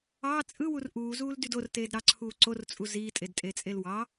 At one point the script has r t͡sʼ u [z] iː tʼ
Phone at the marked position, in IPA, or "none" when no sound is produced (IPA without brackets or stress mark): z